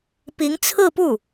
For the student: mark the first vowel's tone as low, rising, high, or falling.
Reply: rising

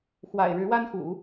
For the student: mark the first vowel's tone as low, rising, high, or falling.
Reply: low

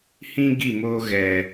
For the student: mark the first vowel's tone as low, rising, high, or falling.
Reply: high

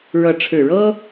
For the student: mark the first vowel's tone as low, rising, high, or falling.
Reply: rising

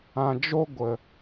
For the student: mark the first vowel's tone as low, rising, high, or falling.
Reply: low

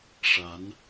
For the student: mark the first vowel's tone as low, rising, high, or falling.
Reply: rising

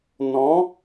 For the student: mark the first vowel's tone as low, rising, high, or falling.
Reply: rising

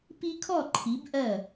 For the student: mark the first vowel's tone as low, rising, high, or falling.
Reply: high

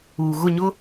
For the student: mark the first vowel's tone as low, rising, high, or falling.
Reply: low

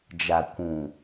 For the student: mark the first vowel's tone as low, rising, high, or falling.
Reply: low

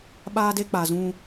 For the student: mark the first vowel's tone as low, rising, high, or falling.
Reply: high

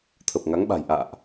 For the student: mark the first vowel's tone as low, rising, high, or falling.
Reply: low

